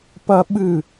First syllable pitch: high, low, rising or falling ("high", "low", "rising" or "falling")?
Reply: high